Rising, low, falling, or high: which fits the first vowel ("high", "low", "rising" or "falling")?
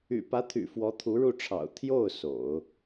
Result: low